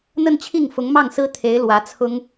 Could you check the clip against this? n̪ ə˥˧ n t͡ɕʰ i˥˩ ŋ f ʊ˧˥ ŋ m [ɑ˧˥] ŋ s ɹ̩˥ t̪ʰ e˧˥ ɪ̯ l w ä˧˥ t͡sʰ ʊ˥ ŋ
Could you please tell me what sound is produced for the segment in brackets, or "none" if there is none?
ɑ˥˩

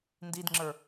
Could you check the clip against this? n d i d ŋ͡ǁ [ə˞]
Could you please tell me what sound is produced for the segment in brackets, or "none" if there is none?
ə˞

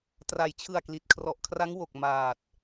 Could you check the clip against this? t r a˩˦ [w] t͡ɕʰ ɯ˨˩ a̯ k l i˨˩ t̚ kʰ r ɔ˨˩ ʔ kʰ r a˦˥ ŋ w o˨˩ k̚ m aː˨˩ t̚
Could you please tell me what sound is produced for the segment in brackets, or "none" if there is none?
j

